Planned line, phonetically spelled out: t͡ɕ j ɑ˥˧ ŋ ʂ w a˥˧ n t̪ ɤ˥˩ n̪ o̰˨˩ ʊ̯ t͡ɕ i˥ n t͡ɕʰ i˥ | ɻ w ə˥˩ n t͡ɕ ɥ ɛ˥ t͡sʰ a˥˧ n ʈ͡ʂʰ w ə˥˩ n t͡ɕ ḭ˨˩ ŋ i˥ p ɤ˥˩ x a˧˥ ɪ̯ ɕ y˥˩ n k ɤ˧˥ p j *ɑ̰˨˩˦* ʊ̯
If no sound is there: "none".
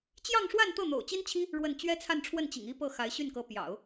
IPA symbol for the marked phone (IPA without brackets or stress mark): ɑ̰˨˩˦